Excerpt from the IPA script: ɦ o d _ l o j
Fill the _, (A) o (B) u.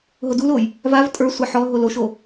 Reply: B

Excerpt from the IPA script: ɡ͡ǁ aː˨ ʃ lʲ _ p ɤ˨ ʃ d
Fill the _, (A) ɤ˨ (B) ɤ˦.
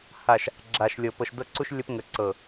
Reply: A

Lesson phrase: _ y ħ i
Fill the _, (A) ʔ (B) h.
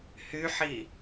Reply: B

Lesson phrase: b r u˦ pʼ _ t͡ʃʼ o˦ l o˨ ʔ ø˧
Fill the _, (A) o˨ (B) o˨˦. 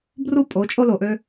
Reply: B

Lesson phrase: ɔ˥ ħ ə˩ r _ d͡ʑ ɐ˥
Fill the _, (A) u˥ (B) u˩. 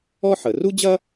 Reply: A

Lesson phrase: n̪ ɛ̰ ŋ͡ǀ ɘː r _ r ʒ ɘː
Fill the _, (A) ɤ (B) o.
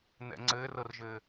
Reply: A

